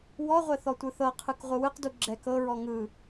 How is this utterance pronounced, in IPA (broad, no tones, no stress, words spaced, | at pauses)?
wɔʁʷɛ θɔtʷɯθɤqʰɯk ʁʷɯwɯqdu ɡ͡ǁɛk ɤɹɔ ŋɯ